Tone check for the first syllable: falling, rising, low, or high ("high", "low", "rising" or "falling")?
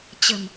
low